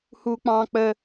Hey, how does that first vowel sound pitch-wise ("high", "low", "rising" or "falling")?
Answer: high